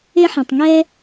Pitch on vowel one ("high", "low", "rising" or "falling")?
high